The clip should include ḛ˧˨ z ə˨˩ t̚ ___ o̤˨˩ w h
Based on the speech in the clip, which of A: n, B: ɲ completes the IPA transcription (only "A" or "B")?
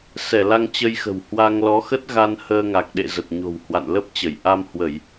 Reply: B